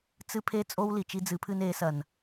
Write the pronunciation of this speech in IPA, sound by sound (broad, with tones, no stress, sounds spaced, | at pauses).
t͡s ɨ˦ pʰ e˦ t͡sʼ o˦ w l i˨ t͡ʃ i˦ d͡z ɨ˨˦ pʰ ɨ˦ n e˨˦ s ɐ˨ n